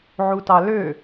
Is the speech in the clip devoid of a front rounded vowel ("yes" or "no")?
no